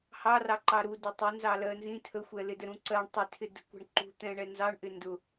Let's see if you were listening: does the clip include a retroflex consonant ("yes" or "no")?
yes